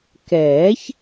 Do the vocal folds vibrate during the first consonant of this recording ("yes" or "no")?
no